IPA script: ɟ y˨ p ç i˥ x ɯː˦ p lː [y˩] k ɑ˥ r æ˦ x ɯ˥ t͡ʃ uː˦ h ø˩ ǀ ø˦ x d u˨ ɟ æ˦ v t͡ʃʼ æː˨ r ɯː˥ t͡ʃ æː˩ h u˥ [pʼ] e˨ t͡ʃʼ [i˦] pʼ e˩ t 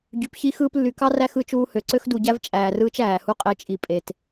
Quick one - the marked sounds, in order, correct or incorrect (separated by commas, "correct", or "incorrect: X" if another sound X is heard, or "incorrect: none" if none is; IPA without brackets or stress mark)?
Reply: incorrect: y˨, incorrect: qʼ, incorrect: i˨